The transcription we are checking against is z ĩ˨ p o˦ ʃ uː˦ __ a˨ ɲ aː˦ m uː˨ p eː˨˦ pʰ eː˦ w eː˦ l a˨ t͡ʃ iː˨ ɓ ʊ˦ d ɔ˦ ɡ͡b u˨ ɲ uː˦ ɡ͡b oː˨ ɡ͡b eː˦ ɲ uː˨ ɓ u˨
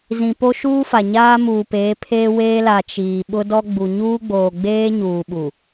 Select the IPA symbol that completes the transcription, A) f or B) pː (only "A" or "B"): A